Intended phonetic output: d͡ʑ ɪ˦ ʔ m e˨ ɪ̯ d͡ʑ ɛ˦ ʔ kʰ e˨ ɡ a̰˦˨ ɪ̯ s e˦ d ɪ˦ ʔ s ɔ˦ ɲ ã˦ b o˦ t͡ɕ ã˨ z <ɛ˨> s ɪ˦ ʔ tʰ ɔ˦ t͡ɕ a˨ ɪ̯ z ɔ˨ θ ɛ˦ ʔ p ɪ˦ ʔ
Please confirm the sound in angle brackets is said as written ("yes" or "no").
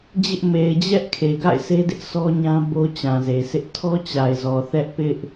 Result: no